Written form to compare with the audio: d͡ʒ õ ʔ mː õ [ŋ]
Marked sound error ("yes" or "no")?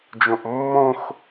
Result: yes